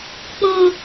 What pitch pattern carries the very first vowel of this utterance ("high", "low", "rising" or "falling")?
high